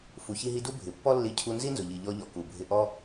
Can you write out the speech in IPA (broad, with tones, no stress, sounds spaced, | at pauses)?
f u˩ ç i˧ ɦ i˧ d u˥ bʱ ɪ˩ pː ɔ˥ lː i˧ cʰ u˧ n z i˥ n z ʊ˩ ʎ i˩ ʎ ɔ˧ ʎ ɔ˩ k u˩ bʱ ɪ˧ ʔ ɔ˥